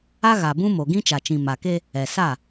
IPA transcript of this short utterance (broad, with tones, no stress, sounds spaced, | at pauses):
a˦ ɣ a˨ b ũ˦ m o˨ ɡ ĩ˦ t͡ʃ a˨ t͡ʃ ĩ˨ m a˨ k e˦ | ɛ˨ s a˦˨